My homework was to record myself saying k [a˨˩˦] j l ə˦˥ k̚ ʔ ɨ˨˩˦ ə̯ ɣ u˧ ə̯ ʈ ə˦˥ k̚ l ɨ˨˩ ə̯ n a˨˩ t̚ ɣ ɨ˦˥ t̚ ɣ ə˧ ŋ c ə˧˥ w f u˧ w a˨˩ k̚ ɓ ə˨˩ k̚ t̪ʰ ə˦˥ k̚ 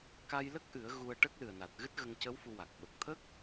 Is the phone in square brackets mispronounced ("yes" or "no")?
yes